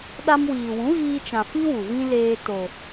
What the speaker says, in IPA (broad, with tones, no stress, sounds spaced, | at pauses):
ɗ a˧ m w iː˨ w ũ˨˦ ɣ iː˧ t͡ʃ ã˨ f i˦ w u˨ v ĩ˦ l eː˧ t o˨